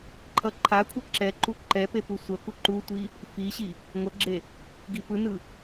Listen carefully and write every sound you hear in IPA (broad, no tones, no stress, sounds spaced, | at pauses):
ǃʰ ʌ ǃʰ a kʷʰ ɯ ǁ ɛ ǃ u ǃ ɛ p e p u sʷ ʌ k u ǃ u tʷ i | f i ɕ i | ŋʷ ʌ ɡ͡ǁ e | ɡ i p ɯ n ɯ